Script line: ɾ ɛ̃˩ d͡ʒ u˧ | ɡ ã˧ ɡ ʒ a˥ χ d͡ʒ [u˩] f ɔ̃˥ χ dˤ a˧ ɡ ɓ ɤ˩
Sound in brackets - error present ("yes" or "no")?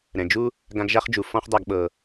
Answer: no